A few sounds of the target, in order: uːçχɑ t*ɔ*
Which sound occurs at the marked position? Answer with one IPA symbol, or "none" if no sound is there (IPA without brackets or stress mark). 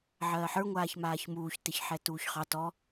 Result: ɔ